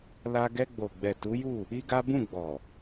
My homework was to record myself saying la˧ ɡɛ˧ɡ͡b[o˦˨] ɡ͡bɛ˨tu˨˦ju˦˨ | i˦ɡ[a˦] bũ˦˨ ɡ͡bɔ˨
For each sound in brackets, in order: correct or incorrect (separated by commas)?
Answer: incorrect, correct